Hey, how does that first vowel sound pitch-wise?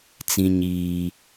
high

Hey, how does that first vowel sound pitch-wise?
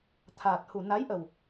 low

